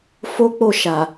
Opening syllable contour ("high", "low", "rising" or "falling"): high